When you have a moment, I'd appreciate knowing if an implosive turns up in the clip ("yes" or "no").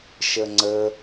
no